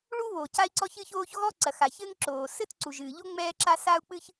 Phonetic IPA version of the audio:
ɭ u˥ β o˩ c a˥ i̯ ǀ ɔ˥ ç ɨ˥ ç oː˥ ç ɣ ɔ˥ ǀ ɐ˩ x a˩ ç ɘ˥ ŋ ǁ oː˩ s ɘ˥ t ǀ u˩ ʒ ɨː˩ ʎ o˥ ŋ͡m ɛː˥ ǁ a˥ s a˥ u̯ k͡p ɨ˥ ç

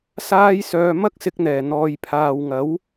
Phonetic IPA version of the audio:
s aː˥ j s œː˧ m ɐ˥ k̚ s ɪ˧ k̚ n̪ ɛː˨˩ n̪ ɔː˨ j pʰ aː˨ w ŋ ɐ˨˥ w

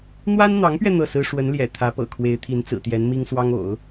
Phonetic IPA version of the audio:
n̪ w a˥ n n̪ ɑ˧˥ ŋ p ɥ ɛ˧ n̪ ɤ˥˩ s ɹ̩˥ ʂ w ə˧˥ n l j ɛ̰˨˩ t̪ʰ ä˧˥ p ɤ̰˨˩ kʰ w e˧˥ ɪ̯ t̪ʰ i˧˥ n t͡s ɹ̩˨˩ t̪ j ɛ˧˥ n m i˥ ŋ s w ɑ˥ ŋ o̰˨˩˦ ʊ̯

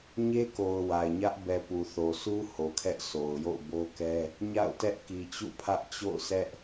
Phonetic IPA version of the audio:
ɲ e˦ k o˨ ʊ̯ w a˨ ɪ̯ ɲ ä˦ ʔ b ɛ˨ p u˨ θ o˨ sʰ u˦ h o˨ kʰ ɛ˦ ʔ sʰ o˨ ʊ̯ j o̰˦˨ ʊ̯ b o˦ k ɛ˦ | ɲ a̰˦˨ ʊ̯ t ɛ˦ ʔ k i˨ t͡ɕ ṵ˦˨ pʰ ä˦ ʔ t͡ɕ o̰˦˨ ʊ̯ sʰ ɛ˦ ʔ

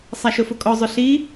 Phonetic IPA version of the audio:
sˤ a ʃ ʊ f ʊ kʼ ɔ zˤ ʊ ɬ i

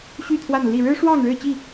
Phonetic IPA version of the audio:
ɕ y˥˨ t̪ʰ w a˥˨ n l i˥˨ ɻ ɻ̩˦ ʂ w ɑ˥˨ ŋ ɻ ɻ̩˥˨ t͡ɕ i˥˨

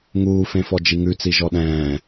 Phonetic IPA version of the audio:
ŋ uː f ẽ f ɔ d͡ʒ i ŋ ʉ t͡s i ʒ ɔ ɗ ɛ̃ː

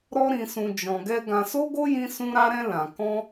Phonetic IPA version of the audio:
ɾ ɔ˦ ɾ ĩ˧ s ũ˧ d͡ʒ ɔ̃˧ ɡ ɛ˦ ɡ ã˧ s o˦ ɡ o˦ j ĩ˦ s ũ˦ ɾ a˦ ɾ ɛ̃˦ l ã˧ k ɔ̃˦

